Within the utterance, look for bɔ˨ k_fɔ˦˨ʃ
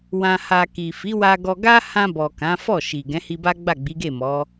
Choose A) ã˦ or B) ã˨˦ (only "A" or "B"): B